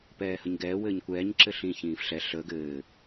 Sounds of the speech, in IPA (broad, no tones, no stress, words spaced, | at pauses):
pɛːhəɲɡɛː wɘːɲkʷɛːɲ ǁɘɬĩ çĩːfɬɛ ɬəːɡ ɘː